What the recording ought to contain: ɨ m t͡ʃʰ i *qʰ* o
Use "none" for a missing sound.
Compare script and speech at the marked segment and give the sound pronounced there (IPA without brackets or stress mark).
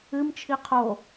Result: qʰ